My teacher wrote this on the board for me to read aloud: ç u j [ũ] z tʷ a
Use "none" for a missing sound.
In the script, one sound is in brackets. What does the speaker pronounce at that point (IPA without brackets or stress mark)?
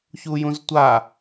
ũ